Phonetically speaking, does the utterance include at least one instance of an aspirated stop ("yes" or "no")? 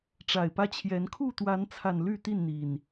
yes